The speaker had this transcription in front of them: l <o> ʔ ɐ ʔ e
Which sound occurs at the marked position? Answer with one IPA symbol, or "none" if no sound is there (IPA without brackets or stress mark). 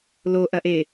o